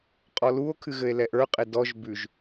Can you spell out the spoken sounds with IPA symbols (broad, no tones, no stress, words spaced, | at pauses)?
qʼɔluo̯ kʰɨɣɘe̯lɛʔə˞ qʼedɔʒ bʉʒ